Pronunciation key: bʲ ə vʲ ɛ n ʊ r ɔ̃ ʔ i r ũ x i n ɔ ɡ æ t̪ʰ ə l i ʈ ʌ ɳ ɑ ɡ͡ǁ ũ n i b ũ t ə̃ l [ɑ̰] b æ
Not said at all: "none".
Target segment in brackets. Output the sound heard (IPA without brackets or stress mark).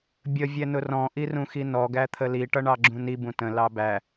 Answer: ɑ